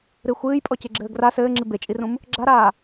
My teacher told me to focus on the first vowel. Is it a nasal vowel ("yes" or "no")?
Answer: no